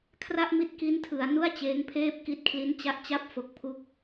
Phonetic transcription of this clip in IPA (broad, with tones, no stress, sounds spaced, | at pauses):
kʰ r a˥˩ ʔ m i˦˥ t̚ k i˦˥ n tʰ ɯ˩˦ a̯ n u˥˩ a̯ t͡ɕ eː˦˥ ŋ pʰ eː˥˩ p̚ k i˦˥ t̚ kʰ l i˦˥ n t͡ɕ a˦˥ ʔ t͡ɕ a˥˩ p̚ f o˨˩ k̚ pʰ u˦˥ k̚